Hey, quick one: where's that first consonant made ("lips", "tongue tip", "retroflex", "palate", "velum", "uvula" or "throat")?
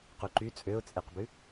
uvula